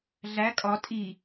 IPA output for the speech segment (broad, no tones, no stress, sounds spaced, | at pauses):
ɮ æ kʼ ɒ tʼ i